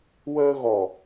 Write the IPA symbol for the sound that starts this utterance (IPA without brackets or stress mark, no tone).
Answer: w